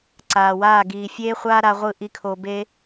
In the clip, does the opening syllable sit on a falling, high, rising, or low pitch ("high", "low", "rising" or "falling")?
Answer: low